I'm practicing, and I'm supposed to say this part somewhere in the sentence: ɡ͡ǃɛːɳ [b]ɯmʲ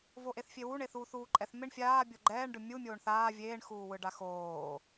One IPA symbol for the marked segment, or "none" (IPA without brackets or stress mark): ɖ